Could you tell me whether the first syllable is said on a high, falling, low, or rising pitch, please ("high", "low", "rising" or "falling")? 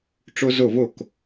high